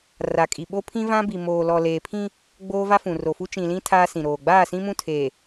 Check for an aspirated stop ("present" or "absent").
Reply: present